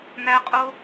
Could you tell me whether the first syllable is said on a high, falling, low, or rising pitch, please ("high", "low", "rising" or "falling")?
high